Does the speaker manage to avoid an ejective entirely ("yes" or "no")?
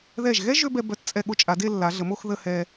no